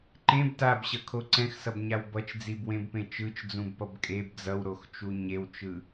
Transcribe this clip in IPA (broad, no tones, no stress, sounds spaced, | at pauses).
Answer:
ǃ ẽ b t a b ɕ ʌ kʰ o ǀ ɛ̃ x s ʌ b ɲ a w b ʌ t͡ʃ d͡z i b w ẽ b p ẽ t͡ʃ ɯ t͡ʃ d͡z ũ b p ʌ b kʼ e b d͡z ʌ w ɾ o x t͡ʃ u ɲ e w t͡ʃ ɯ